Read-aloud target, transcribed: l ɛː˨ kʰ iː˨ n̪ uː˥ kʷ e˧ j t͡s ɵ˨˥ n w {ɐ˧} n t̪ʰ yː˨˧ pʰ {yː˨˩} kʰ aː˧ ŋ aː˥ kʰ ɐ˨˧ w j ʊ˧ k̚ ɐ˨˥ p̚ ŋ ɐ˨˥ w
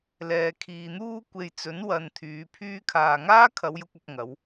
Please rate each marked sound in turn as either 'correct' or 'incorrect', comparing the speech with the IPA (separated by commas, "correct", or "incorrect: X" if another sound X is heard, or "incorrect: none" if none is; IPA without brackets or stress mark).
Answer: incorrect: ɐ˨, incorrect: yː˥